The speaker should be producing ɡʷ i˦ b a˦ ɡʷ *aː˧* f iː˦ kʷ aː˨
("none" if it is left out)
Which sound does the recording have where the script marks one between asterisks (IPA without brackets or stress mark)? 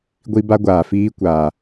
aː˨